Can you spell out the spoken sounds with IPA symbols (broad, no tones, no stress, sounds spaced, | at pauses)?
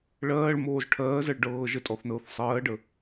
ɭ ɜː ɭ m oː z ʈʰ ɜː z ɜ ɭ ɖ ɤː ʒ ə tʼ ɔ θ n ɤː θ sˤ ɜː ɖ ə